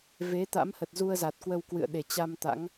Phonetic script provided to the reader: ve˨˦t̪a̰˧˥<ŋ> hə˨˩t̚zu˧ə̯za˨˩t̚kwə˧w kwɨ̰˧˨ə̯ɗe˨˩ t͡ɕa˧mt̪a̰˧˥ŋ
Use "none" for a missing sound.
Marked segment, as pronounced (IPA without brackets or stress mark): m